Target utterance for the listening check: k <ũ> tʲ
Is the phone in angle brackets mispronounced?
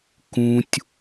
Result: no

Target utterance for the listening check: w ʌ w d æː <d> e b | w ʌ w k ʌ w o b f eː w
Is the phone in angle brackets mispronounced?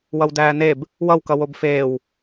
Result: yes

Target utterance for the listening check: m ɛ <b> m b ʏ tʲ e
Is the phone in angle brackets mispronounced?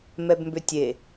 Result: no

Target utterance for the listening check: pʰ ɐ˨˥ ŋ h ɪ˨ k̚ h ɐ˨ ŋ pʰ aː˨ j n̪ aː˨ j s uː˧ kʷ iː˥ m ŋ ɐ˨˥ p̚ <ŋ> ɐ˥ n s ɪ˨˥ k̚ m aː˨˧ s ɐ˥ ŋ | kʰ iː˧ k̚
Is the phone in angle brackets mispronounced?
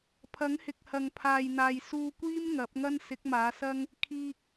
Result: no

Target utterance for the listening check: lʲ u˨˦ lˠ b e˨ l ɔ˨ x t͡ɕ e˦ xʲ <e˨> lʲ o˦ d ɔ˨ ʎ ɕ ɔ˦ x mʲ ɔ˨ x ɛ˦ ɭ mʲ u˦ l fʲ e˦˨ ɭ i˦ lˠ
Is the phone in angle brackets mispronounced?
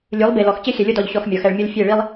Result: yes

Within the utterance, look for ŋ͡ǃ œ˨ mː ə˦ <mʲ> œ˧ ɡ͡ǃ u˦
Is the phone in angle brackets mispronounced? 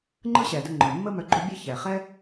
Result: yes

